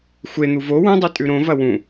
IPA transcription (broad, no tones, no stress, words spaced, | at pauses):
xʷen̪u vo wũdˤu tʼʉɾõvɐ wũ